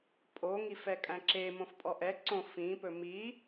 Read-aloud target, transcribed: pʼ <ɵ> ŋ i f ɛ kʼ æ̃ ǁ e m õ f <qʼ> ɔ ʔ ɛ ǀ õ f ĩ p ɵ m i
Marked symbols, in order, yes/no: no, no

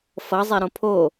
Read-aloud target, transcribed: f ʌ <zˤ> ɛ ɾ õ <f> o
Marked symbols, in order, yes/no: yes, no

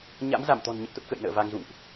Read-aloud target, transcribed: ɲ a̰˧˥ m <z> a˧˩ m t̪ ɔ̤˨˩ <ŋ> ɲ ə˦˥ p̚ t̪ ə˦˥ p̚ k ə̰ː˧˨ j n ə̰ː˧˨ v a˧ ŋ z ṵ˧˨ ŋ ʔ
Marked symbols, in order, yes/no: yes, no

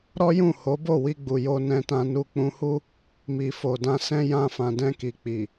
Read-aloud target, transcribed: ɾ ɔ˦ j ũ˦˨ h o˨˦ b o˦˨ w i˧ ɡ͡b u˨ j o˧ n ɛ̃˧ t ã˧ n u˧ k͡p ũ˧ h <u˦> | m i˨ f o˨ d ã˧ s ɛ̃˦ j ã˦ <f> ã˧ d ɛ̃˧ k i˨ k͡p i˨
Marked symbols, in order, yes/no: yes, yes

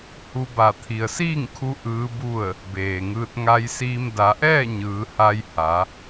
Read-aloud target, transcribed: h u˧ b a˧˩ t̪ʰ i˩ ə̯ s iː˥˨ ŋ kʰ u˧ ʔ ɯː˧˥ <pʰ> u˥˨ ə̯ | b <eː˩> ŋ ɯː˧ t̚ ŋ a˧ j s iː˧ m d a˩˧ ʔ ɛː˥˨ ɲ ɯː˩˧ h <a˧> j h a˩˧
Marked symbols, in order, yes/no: no, yes, yes

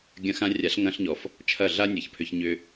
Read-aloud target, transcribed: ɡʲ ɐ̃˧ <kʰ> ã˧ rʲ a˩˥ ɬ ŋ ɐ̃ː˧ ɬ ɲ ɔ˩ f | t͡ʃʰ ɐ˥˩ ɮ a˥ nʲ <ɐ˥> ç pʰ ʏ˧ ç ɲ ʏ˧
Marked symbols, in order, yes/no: no, no

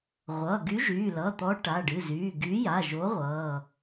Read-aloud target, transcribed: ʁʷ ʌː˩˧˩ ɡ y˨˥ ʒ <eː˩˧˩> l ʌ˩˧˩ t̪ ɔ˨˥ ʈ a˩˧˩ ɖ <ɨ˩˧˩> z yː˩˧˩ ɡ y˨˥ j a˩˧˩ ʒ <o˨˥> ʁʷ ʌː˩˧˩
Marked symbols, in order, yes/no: no, yes, yes

